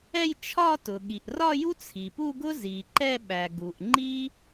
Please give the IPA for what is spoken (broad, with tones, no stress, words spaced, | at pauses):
ɛ˥˧jt͡ʃʰɒ˥˧ tʊ˩ɠi˩ʔrɒ˥˧ju˥ t͡sʰi˩pu˥˧ɡʊ˥ zi˩ǃɛ˥˧ɓæ˩ ɡu˩ʔŋ͡ǃi˥